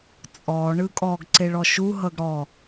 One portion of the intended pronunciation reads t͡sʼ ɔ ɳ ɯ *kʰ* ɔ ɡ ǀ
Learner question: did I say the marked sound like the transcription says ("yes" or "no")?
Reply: no